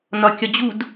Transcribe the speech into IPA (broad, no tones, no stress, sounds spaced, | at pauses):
n ɒ kʲ ɒ d͡ʑ u d